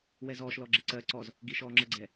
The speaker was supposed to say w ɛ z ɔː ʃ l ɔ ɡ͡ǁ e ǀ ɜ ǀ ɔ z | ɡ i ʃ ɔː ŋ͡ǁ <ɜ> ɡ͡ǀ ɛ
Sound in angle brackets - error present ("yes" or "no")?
no